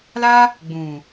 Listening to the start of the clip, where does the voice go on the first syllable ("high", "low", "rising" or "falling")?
high